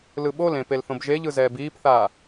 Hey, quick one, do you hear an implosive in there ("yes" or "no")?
yes